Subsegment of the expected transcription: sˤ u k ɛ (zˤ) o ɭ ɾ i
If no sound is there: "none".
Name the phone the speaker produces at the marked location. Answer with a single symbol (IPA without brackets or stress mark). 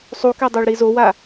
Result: dˤ